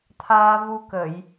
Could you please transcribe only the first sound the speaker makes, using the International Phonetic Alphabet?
t̪ʰ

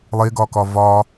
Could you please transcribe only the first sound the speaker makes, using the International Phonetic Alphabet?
lˠ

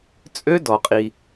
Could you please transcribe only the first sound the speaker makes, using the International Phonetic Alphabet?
t͡sʼ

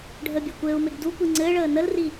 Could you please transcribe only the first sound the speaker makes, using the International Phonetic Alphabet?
ɖʱ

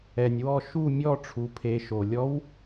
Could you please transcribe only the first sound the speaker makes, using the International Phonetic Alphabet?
ɛ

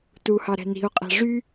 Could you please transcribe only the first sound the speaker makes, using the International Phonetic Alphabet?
t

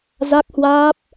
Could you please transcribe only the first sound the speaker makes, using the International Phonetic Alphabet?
z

